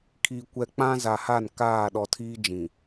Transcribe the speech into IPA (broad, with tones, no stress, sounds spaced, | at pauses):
kʰ i˨ kʷ ɛ˨ k͡p ã˦ z a˨ h a˦˨ n k aː˦˨ ɗ ɔ˨ tʰ iː˦ d͡ʒ ĩ˨